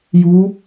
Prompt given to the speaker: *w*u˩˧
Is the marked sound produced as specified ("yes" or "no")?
no